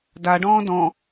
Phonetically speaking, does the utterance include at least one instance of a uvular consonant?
no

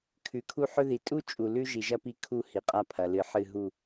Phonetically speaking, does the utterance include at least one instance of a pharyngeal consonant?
yes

